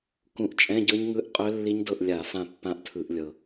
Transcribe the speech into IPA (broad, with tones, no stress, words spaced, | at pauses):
kũ˨˦ʔt͡ʃʼɛ̃˧˥˧ɟɤ˦˥ɲŋɯ˧˥˧ʔ qʼœ˦˥lːi˦˥ɲdɤ˦˨ʔ lʲa˧˩˧ fã˦˨pːã˦˥ʔtʰɯ˧˩˧ʔ lʲɤ˨˩